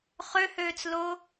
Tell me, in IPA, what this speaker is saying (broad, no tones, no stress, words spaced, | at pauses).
χøhøːt͡slo